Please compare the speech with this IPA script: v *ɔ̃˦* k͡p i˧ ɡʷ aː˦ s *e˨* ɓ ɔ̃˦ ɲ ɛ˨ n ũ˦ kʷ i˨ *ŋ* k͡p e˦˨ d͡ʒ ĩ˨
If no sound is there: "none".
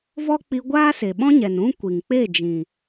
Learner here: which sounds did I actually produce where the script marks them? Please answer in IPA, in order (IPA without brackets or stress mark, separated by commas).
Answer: ɔ˦, e˨, ŋ